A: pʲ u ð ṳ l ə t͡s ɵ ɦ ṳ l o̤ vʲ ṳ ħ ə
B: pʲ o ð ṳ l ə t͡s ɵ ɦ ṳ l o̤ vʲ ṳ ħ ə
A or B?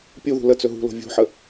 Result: A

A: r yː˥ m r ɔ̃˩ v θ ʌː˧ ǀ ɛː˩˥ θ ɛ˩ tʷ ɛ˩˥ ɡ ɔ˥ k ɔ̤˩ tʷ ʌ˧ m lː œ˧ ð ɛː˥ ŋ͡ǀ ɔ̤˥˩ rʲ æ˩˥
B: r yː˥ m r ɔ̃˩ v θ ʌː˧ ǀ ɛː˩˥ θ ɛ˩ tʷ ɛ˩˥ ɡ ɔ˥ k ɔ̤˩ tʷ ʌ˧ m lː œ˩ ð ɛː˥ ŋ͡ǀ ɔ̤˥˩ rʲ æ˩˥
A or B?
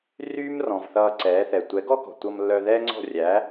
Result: A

